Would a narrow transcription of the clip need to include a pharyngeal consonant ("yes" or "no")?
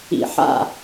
yes